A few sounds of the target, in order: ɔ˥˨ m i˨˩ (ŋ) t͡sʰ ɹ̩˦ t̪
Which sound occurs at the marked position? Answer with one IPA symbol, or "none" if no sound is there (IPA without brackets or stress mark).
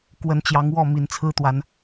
n